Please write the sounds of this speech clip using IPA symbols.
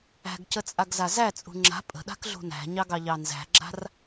æ̤ ɡ c ə t͡sʼ a ɡ z a z æ t͡sʼ ṳ ŋ͡ǁ a̤ pʼ ə̤ ɗ a̤ k ɮ ṳ n æ̤ ɲ ɑ ɡ ɑ ʎ ɑ n z æ̤ ɡ͡ǁ a̤ r

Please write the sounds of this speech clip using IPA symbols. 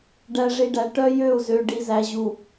ɖ æ˨ ʐ i˨ ɖ æ˨ ʈ œ˦ j ø˦˨ u̯ z ø˨ ɖ i˨ z æ˨ ʑ u˨

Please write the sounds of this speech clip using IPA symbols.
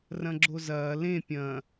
r ɐ̃ ɡ͡ǁ o z ɐː l ẽ pʲ ɐ̃

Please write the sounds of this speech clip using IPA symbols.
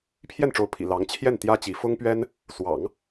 pʰ j ɛ˥˩ n ʈ͡ʂ o˧˥ ʊ̯ pʰ ḭ˨˩ l ɑ˧˥ ŋ t͡ɕʰ j ɛ˥˩ n t̪ j ä˥ t͡ɕ i˧˥ f ʊ˥ ŋ p ɥ ɛ˥ n | s w ɑ̰˨˩˦ ŋ

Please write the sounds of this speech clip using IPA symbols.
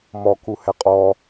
m ɔ k u h ɛ qʼ ɔ

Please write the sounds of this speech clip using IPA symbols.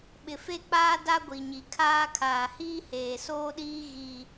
ɓ ɪ˨ f e˦˨ k͡p aː˦ d a˦ ɡʷ i˨ ɲ i˨ kʰ aː˦ kʰ aː˨ h iː˦ h eː˨ s oː˦ ɗ iː˦ ɣ iː˦

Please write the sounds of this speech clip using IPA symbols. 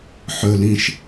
ħ ɵ l ĩ ʃ

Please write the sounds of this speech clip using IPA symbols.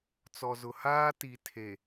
t͡s ɔ˨ z ʊ˨ h aː˦ t i˨ tʰ e˨

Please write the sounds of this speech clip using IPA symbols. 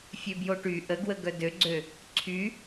fʲ ø b j o ʈ y ʔ ə ɡ w ə ɡ œ d ø ɡ͡ǀ ø | ǀʰ y

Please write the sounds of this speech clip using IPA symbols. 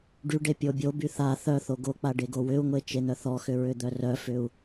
ɖ y ɖ e pʲ o bʲ o b y θ a θ œ θ o ɡ o k͡p a ɖ e ɡ o w ʏ u̯ ŋʷ e t͡ʃ e n̪ œ θ ɔ x ʏ ɹ ʏ d̪ œ r œ f ʏ u̯

